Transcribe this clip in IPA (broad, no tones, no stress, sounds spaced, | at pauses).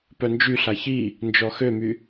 p œ n d͡ʒ y ɬ a ç i | n d͡ʒ ɔ x ø m y